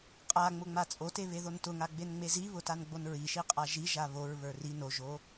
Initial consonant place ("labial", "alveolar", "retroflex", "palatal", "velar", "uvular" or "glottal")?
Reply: uvular